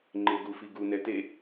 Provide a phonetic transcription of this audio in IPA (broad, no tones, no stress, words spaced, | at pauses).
ŋ͡ǃeɡufiɡu nɛte